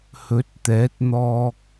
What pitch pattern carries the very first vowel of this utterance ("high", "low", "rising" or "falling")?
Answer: rising